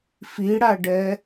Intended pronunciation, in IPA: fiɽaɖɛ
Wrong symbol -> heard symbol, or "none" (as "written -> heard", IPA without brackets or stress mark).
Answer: none